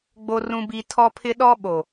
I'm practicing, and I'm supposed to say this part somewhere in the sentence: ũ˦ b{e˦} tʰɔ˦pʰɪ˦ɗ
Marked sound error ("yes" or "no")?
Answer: yes